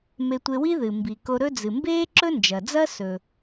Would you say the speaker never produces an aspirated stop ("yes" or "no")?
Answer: yes